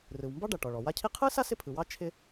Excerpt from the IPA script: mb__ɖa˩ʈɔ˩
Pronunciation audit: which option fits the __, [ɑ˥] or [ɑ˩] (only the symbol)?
ɑ˥